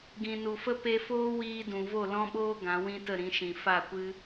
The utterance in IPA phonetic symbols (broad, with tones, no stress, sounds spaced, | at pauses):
ɡ ĩ˨ n u˨ f ə˦ p e˧ f oː˦ w iː˧ d ũ˨ v o˦˨ l ɔ̃˦ ɓ oː˦ ɡ ã˨˦ w ĩ˦ t ə˦˨ ɾ ĩ˨˦ ʃ ĩ˨ f a˦˨ kʷ ɨ˦